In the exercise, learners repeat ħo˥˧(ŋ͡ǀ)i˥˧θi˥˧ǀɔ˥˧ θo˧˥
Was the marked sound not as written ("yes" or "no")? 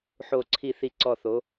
yes